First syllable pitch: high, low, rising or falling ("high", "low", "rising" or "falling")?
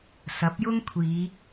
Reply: rising